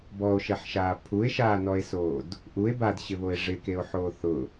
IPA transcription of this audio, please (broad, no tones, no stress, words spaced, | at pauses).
bɔo̯ʃɛħʃaː pʰue̯ʃaːnɔe̯soːd | ʔue̯ badɕɪβoe̯ ʐɪkeo̯ħoː θʊ